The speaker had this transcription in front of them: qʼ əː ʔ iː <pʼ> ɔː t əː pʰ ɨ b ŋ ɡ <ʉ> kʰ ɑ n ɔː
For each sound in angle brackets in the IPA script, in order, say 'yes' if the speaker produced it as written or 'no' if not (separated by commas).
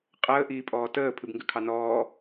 yes, yes